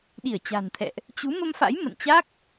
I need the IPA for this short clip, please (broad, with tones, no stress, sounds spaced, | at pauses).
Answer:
ɗ i˧˩ ə̯ t͡ɕ a̤˨˩ n t̪ʰ ɛ̰˧˨ ʔ | t͡ɕ u˨˦ m ə˧ m f a̰˧˥ j m ə̰˧˨ n t͡ɕ a˦˥ k̚